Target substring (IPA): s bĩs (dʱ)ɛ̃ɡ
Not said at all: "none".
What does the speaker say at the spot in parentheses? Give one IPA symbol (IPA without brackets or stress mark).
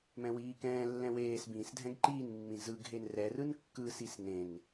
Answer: dʱ